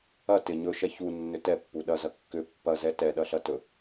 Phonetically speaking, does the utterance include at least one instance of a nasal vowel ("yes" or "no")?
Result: no